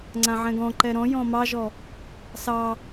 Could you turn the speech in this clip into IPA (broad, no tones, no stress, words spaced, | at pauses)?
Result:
ŋ͡ǀãʕɛ̃ɡɔ̃ǃɛ ɾɔ̃jɔ̃ mɑʒɔ | sɑ